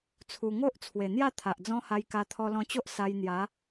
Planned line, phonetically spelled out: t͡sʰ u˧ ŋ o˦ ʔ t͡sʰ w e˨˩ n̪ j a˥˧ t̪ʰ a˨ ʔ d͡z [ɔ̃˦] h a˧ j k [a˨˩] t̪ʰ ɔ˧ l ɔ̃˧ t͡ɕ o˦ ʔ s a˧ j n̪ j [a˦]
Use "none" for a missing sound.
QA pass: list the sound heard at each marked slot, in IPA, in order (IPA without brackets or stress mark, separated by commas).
ɔ̃˦, a˧, a˨˦